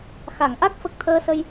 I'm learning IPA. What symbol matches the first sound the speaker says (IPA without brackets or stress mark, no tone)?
x